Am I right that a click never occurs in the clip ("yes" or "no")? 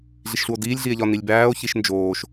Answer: yes